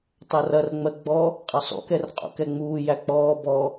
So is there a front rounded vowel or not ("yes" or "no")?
no